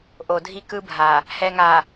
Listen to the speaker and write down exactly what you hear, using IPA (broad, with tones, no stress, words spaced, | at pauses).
ʔo˨dʱi˦kɯ˦bʱa˨ | hɛ˨ŋa˨